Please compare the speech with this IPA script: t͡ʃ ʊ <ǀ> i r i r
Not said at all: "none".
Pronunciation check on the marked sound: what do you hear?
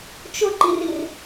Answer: ǃ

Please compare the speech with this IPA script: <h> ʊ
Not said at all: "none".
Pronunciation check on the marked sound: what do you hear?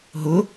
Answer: ɦ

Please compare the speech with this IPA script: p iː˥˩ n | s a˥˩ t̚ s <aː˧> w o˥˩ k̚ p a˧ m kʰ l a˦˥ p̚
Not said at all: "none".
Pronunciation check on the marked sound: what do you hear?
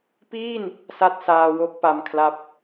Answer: aː˧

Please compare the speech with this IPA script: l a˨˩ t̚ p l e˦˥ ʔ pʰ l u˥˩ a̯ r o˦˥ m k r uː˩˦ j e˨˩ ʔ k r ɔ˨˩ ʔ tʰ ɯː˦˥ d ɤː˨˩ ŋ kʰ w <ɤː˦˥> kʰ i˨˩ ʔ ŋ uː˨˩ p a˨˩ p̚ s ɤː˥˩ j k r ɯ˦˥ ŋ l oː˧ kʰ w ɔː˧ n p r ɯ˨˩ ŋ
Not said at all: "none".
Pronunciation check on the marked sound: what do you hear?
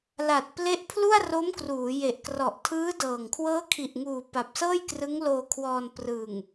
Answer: ɤː˦˥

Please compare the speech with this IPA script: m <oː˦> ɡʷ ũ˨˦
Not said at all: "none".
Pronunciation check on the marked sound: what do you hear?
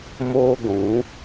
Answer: oː˦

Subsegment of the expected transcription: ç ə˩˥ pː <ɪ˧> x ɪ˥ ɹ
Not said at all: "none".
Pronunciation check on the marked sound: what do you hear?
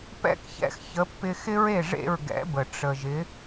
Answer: ɪ˧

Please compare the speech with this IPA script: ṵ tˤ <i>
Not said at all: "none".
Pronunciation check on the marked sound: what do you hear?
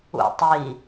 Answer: i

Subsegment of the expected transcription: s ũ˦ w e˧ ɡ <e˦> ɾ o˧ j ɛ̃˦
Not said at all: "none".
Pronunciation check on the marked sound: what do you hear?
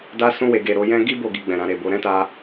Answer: e˦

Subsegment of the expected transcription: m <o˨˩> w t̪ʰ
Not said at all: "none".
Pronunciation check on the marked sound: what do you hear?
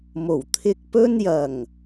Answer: o˨˩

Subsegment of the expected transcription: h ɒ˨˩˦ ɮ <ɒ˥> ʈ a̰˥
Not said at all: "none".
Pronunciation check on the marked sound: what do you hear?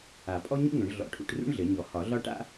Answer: ɒ˥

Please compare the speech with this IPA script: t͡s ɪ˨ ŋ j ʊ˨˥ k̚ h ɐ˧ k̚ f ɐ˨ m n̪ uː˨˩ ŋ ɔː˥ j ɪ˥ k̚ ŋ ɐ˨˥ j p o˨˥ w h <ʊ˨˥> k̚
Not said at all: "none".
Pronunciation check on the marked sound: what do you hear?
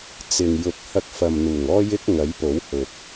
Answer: ʊ˨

